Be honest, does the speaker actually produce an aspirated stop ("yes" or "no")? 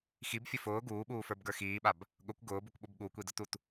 no